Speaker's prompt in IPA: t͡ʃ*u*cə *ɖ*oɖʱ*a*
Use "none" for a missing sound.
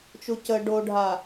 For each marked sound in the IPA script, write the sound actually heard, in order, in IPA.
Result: u, ɖ, a

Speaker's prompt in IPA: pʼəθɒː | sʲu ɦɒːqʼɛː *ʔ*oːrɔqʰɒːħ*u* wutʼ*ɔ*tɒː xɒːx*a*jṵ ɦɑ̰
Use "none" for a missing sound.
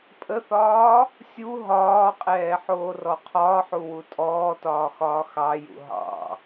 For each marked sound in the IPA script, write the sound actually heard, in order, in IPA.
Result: ħ, u, ɔː, ɑ

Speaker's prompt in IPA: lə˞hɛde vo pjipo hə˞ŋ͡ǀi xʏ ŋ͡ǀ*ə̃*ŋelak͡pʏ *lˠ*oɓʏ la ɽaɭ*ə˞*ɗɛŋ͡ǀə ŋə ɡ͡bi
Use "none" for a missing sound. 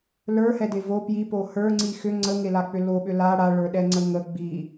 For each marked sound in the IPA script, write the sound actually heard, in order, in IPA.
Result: ə, l, ə˞

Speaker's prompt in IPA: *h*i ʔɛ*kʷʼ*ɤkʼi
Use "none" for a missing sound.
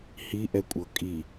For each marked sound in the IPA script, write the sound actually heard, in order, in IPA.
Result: h, kʷʼ

